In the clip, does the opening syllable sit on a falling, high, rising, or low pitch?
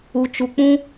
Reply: low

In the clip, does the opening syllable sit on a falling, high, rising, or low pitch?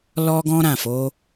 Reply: high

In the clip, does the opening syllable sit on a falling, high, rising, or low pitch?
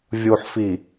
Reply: low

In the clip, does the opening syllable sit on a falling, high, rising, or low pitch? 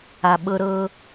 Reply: low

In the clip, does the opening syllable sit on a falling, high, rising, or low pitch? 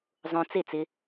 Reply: high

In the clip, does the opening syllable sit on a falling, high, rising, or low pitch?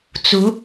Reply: rising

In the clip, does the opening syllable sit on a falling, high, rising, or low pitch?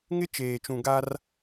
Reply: high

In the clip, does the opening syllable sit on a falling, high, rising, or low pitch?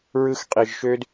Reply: high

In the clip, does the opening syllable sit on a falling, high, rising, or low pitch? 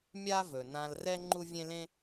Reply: high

